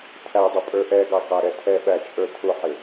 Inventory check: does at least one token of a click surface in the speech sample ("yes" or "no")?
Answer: no